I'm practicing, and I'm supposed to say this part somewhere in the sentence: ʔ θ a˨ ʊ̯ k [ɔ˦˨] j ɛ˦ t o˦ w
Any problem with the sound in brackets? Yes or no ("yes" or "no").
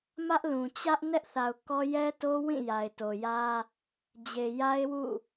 yes